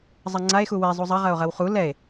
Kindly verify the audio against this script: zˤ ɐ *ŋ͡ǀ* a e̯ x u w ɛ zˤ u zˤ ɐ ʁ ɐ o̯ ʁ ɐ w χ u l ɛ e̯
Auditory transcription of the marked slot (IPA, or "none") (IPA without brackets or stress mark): ŋ͡ǀ